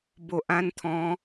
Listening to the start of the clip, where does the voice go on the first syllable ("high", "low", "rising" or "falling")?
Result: low